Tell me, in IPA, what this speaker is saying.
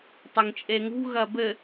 tˤ ɐ ŋ t͡ʃʼ e ŋ ṳ ɣ ɐ b ɘ

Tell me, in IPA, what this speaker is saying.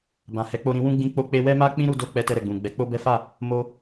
b ã˨ h ɛ˨˦ k͡p o˧ ɾ ĩ˧ w ũ˦ ɡ͡b ĩ˦ k͡p o˦ k͡p e˦ w ɛ˦ m a˦ k͡p ĩ˦ ɾ u˧ d o˧ k͡p ɛ˧ t ɛ˧ ɾ ɛ˨ ɡ͡b ũ˨ ɡ͡b ɛ˨˦ k͡p o˦ b ɛ˦ f a˦˨ | m o˧

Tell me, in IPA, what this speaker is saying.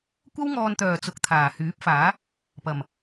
kʷ ɐ˥ w ŋ ɔː˧ n t̪ œː˨ t͡s ʊ˨˥ k̚ t̪ʰ aː˨˩ h yː˨˥ p̚ f aː˨˥ | p ɐ˨˩ m

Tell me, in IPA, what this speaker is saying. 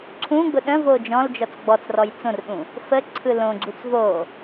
ǀʰ ũ ɡ͡b ʊ ɗ ə̃ v o d͡ʒ ɔ̃ l d͡ʒ ɔ t͡s ɡ͡b ɔ t͡s r ɔ j t͡s õ r ɗ ũ | f ə ǀʰ ɯ l õ ɡ͡ǀ u t͡s v o

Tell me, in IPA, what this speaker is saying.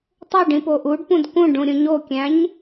tˤ ø ɖ ĩ p o ʔ u ɖ p ũ d k ũ ɖ ũ ɾʲ ũ ɲ o kʲ æ̃ ɲ

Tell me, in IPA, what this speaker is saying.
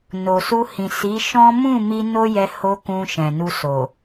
n o˨ s u˧ h ĩ˨ s i˨˦ ʃ ɔ̃˦ m ũ˦˨ m i˧ n o˦ j ɛ˧ h o˦ k ũ˧ ʃ ɛ̃˨ n u˧ s o˨

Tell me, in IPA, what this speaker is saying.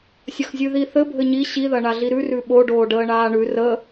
sʲ ɐ x zʲ ʉ ð i θ ɘ bʱ ɘ ɲ i ɕ i ð ɐ ɳ a ɮ i ɾ ʉ r ʉ ɓ o ɖ oː ɖ əː ɳ aː ɳ ʉ r ə

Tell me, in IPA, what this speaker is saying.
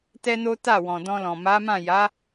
t ɛ˦ n o˦ t a˦˨ w ɔ̃˨ d ɔ̃˧ l ɔ̃˨ m a˨˦ m ã˦˨ j a˨˦

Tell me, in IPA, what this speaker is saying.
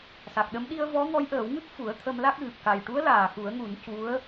s a˨˩ k̚ ɗ ə˧˥ m ɗ i˧ ə̯ v ɔ˧˥ ŋ ɔ˧˥ j ʔ əː˨˩˦ w ŋ ɨ˦˥ k̚ f u˨˩˦ ə̯ t̪ʰ ə˧ m l a˦˥ k̚ ɣ ɨ˨˩ p̚ k a˨˩ j ʈ u˧˥ ə̯ l aː˨˩ x u˨˩˦ ə̯ ŋ u˨˩˦ n c u˧˥ ə̯

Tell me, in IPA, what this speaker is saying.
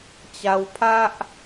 t͡ɕ a˧ w pʰ a˦ ʔ

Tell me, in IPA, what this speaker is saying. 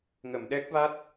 ŋ ə˨˩˨ m ɗ ɛ˦˥ k̚ v a˦˥ t̚

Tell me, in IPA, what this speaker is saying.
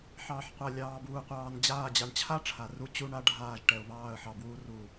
ħ ɑː˨ ħ qʷ a˨ lʲ ɑː˨ b uː˨ qʷ ɑː˨ n d͡ʑ aː˦˨ d͡ʑ a˨ ɳ t͡ɕʰ a˦ ʈ͡ʂʰ a˨ r u˦ t͡ɕ u˦ ɳ a˦ ɖʱ aː˦˨ ʒ ʈ ɛ˨ ʊ̯ β ɑː˦˨ ə̯ ħ ɑ˨ b w uː˦ r uː˨

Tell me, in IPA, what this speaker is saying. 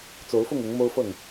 t͡s o˨˦ ʊ̯ f ʊ˥˨ ŋ ʊ˨˦ ŋ m o˦ ʊ̯ f ɤ˥˨ ŋ

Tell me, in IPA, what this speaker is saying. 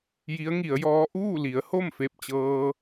j i˧˥ ə̯ ŋ i˩˧ ə̯ j ɔː˧˥ ʔ uː˥˨ l i˩˧ ə̯ h o˥˨ m f e˥˨ p̚ t͡ɕ ɤː˧

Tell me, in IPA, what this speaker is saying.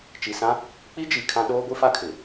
t͡ʃ i˨ s ã˦ | k͡p i˦ d͡ʒ i˨ kʰ ã˦ ɗ oː˦ ɡʷ i˦ f a˦ kʰ ɪ˨

